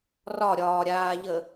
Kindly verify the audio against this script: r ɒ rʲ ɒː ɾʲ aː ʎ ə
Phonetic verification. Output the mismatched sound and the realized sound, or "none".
rʲ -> ɾʲ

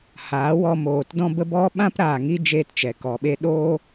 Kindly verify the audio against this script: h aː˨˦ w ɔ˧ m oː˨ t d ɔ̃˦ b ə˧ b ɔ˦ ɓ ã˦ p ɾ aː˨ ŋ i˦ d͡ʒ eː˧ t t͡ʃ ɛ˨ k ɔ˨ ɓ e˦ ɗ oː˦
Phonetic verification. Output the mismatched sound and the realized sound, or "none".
none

